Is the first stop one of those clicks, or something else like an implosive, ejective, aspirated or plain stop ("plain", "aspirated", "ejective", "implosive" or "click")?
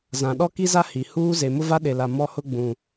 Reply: implosive